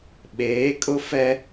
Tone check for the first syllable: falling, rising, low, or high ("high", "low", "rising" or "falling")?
rising